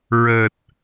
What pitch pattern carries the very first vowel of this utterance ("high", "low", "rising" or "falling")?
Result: low